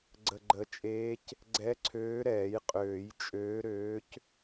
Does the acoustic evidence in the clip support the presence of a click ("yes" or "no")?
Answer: yes